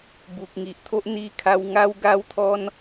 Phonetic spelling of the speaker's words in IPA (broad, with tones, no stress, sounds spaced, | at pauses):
b u˨ k̚ ŋ i˨ ʔ t̪ʰ o˦ ʔ n̪ i˧ kʰ a˧ w ŋ a˦ w ɡ a˦ w t̪ʰ ɔ˦ n